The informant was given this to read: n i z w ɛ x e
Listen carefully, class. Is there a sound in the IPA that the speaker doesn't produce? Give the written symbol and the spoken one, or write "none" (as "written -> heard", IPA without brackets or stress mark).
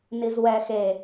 none